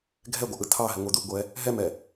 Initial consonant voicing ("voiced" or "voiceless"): voiced